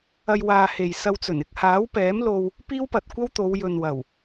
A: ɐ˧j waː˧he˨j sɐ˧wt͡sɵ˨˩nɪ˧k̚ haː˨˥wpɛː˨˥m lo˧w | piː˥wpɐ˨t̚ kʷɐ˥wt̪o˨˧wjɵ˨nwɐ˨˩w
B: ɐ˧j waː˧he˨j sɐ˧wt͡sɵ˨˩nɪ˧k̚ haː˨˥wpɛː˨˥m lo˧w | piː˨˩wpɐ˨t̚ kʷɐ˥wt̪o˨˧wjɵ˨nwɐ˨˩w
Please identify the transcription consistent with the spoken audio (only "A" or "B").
A